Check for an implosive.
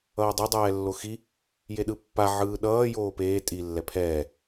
present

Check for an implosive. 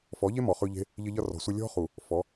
absent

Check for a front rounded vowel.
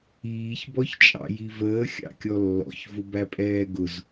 absent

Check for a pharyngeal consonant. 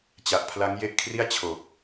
absent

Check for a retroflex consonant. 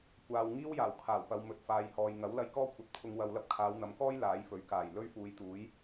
absent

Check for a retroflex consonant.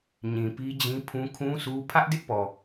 absent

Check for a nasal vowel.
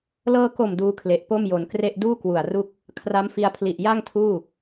absent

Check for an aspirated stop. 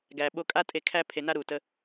present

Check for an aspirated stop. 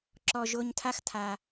present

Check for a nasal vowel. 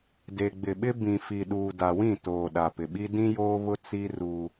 present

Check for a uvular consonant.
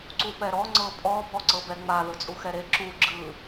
absent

